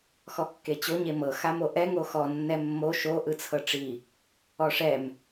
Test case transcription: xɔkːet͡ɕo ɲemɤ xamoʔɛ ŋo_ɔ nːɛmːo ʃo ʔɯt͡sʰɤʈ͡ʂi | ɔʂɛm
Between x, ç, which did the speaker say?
x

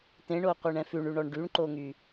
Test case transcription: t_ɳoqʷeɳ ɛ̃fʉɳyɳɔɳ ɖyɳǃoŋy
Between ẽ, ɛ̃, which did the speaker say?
ẽ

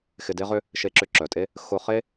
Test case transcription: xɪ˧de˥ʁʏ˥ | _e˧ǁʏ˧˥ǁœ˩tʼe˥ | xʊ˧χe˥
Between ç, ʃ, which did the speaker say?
ʃ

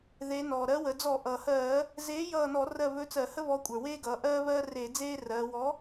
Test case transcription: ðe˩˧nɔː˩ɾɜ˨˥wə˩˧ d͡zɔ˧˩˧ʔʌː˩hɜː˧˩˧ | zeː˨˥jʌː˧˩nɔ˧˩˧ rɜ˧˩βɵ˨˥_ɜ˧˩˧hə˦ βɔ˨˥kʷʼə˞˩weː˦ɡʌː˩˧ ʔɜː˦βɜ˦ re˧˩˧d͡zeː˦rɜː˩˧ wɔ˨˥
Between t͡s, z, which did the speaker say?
t͡s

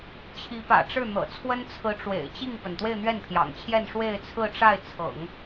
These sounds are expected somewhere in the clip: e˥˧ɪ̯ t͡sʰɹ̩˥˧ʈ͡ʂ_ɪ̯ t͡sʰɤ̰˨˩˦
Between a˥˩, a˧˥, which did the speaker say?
a˥˩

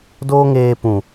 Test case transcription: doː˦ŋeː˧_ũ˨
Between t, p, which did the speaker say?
p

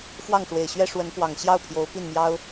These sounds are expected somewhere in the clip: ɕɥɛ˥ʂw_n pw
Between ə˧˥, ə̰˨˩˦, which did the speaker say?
ə˧˥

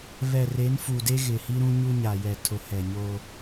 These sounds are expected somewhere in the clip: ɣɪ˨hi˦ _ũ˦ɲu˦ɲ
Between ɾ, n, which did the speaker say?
ɾ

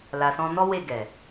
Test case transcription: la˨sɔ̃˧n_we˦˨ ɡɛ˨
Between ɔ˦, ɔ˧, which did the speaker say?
ɔ˦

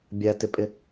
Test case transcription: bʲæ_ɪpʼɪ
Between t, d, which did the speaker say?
t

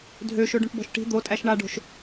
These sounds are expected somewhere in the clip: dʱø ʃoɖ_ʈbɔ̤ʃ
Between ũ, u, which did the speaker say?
ũ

